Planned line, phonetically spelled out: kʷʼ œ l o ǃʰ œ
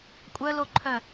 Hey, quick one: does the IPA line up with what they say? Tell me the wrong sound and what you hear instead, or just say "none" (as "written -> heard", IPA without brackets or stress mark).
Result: none